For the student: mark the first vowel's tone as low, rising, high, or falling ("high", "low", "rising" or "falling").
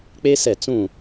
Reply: high